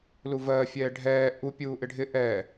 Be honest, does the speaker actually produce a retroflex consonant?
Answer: yes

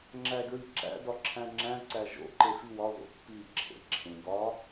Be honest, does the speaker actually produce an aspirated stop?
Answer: yes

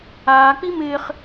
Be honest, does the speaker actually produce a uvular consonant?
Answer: yes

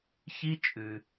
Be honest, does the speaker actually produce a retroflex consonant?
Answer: no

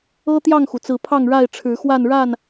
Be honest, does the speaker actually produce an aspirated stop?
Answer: yes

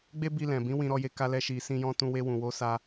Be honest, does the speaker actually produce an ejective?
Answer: no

